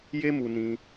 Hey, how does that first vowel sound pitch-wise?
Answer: high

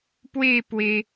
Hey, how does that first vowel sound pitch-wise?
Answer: falling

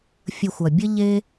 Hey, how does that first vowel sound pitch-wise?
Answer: low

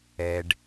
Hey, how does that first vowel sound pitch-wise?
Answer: low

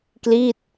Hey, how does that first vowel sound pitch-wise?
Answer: falling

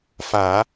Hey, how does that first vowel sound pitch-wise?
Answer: low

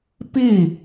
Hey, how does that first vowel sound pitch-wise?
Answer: falling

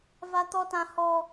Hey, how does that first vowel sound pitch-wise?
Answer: high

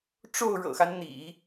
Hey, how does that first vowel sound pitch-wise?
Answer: falling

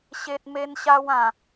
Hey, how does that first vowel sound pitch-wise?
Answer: high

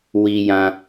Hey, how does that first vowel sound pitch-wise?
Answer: low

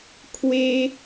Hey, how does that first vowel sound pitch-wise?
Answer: high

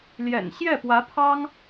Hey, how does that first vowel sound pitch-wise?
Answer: low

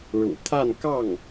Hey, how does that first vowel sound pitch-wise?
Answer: low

